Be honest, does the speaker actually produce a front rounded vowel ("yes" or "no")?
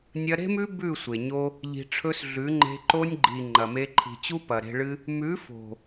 no